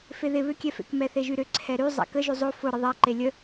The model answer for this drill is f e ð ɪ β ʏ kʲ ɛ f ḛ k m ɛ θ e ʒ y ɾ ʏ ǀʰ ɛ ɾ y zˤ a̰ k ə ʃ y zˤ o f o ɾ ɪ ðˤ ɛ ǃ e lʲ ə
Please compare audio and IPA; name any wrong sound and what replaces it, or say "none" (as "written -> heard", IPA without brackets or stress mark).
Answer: ʃ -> ʒ